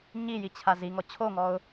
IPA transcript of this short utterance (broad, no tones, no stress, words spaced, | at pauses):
ɲijit͡ɕʰa ziŋɔ t͡ɕʰoŋɔʊ̯